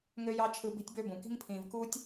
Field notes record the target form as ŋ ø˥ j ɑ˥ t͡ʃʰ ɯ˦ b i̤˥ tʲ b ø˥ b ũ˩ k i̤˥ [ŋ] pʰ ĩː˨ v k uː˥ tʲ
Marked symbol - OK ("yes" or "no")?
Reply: yes